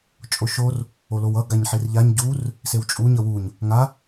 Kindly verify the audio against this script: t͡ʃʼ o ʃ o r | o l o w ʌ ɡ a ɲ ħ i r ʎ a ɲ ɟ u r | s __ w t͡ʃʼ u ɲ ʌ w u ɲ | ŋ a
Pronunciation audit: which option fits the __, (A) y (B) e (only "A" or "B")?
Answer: B